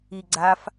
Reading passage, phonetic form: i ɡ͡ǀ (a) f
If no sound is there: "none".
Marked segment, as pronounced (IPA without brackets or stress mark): a